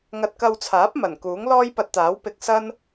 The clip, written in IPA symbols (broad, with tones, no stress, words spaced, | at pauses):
ŋɐ˧t̚kɐ˧wt͡sʰaː˨˥p̚ mɐ˨˩n kuː˨˥ŋlɔː˥jpɐ˧t̚t̪aː˨˥w pɪ˧k̚ sɐ˥n